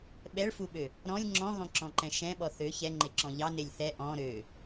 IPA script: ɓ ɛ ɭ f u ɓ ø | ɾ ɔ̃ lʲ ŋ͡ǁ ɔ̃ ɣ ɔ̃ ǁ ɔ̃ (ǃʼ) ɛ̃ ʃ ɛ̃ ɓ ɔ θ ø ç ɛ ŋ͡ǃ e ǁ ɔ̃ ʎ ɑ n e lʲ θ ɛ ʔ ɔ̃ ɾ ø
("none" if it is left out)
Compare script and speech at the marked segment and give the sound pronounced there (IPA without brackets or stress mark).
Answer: ǃ